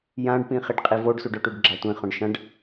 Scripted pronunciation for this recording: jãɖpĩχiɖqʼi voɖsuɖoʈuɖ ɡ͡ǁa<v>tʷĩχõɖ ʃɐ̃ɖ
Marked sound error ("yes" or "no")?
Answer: yes